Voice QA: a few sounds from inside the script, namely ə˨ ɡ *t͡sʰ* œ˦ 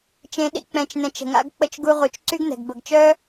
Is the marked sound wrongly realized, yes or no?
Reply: yes